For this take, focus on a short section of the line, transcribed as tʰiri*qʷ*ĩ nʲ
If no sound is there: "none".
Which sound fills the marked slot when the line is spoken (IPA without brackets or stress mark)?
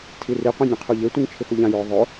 qʷ